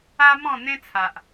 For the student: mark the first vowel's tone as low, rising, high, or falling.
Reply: high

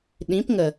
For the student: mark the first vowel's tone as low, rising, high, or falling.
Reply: rising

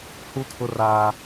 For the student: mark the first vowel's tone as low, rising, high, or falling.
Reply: high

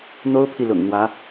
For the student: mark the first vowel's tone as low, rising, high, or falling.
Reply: high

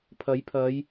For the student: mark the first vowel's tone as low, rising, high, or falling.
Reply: rising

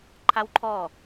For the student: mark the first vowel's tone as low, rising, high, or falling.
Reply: high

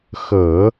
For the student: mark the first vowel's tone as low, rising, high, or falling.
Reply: low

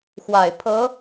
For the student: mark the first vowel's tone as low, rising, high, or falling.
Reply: low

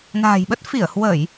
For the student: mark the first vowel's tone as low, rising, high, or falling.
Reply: low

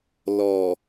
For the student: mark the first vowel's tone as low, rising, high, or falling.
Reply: low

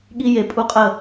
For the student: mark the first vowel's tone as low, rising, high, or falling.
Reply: high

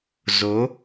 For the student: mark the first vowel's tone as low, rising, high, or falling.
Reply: rising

